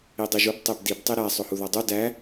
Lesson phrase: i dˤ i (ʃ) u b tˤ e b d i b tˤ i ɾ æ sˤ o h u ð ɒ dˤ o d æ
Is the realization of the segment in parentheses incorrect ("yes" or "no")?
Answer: yes